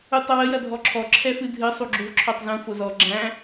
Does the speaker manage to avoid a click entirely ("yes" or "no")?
no